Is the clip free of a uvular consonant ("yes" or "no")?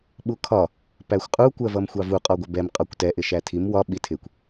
no